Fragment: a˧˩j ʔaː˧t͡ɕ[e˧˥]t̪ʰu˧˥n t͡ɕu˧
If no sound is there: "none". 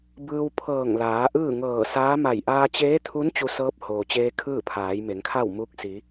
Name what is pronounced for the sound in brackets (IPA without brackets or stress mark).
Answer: eː˧˥